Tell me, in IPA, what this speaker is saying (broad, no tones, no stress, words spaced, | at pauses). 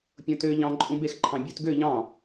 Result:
pʲõtø ʎɑ̃ ǃʼũbex ǃʰɑ̃bʲut ɡø ʎɑ̃